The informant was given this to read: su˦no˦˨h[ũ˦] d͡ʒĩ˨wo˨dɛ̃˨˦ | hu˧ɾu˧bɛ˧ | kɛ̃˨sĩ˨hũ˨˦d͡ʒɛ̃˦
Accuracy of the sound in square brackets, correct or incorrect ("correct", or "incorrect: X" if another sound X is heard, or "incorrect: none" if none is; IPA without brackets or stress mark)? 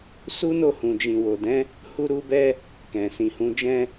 incorrect: ũ˨